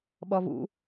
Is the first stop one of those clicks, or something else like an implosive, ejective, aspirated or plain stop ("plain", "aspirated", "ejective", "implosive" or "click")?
implosive